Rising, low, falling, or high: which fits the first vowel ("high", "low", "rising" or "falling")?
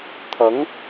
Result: rising